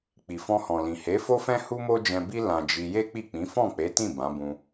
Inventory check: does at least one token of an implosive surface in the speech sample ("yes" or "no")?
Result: no